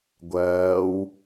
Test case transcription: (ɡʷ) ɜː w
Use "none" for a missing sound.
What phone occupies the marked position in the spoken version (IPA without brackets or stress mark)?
ɡʷ